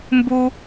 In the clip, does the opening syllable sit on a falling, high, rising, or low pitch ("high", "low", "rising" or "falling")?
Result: high